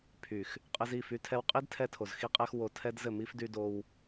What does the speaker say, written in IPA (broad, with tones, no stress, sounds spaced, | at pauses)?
pʰ y˨ x | qʼ ɘ˧ z i˦˨ f y˧ tʰ ɛ˧ w qʼ i˦ d tʰ ɛ˧ tʰ o˨ z x i˧ qʼ ɛ˧ x w o˧ tʰ ɛ˦ d z ɘ˦˨ m i˦ f d y˧ d o˧ w